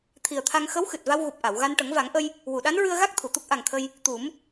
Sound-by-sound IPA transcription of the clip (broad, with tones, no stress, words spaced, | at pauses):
t̪ʰi˨˩ə̯t̪ʰa˧ŋ xə˧˥wxɨ˨˩t̚ va˧wɣu˨˩p̚ʔa˨˩˨wɣa˧n ʈə˨˩˦ŋva˨˩˦ŋʔə˧j | wu˨˩˨ɗa˧˥nɹɨ˧ə̯ɣa˦˥k̚ t̪ʰu˨˩˨t̪u˦˥k̚ʔa˨˩ŋt̪ʰə˧j | t̪u˨˩˦m